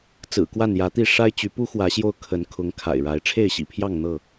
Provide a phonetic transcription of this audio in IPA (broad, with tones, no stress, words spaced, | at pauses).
t͡sɹ̩˨˩kwa˥˨njä˨˦t̪i˥˨ ʂa˦ɪ̯t͡ɕy˨˦ pu˦xwä˨˦ɕjo˧ʊ̯ kʰə˨˦nkʰʊ˨˦ŋ kʰa̰˨˩ɪ̯ɻa˨˦ɪ̯ ʈ͡ʂʰe˥˨ɪ̯ɕḭ˨˩pʰjɑ˥˨ŋn̪ɤ˥˨